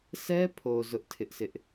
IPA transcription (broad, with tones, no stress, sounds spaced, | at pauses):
sʰ ɛ˦ pʰ o˨ z ʊ˦ ʔ tʰ ɪ˦ ʔ s ɪ˦ ʔ